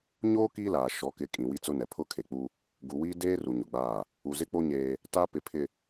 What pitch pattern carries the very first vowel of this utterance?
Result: high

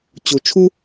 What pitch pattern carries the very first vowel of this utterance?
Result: low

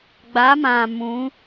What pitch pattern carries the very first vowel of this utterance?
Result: rising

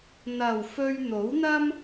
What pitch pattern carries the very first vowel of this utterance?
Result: low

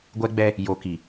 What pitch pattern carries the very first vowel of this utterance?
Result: high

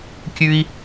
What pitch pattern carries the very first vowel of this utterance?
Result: high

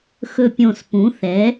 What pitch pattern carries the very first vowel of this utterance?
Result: low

